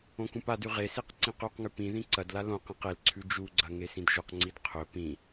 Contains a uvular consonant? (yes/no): yes